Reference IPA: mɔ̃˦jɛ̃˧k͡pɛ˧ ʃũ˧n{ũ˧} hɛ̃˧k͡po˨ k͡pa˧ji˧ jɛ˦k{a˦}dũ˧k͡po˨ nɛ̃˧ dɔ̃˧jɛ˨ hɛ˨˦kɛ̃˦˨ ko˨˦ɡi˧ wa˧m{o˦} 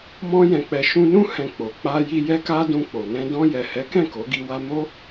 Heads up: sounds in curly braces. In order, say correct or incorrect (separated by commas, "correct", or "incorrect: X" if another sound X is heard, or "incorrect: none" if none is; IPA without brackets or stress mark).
incorrect: ũ˦, correct, correct